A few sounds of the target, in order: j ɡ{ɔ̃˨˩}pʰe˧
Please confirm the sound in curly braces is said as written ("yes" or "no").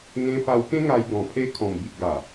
yes